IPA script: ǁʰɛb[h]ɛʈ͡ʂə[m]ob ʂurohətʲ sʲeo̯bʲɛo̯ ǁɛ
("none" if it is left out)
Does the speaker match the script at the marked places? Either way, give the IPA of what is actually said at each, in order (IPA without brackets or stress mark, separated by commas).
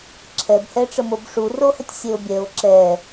h, m